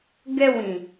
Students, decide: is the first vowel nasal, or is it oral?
oral